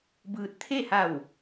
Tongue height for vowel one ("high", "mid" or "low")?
high